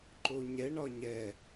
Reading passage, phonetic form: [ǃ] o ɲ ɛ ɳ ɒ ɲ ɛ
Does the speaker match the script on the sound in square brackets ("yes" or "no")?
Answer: yes